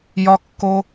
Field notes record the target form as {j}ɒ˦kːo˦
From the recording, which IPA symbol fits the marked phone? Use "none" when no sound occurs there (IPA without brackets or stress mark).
j